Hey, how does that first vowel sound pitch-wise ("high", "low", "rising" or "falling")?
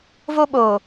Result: high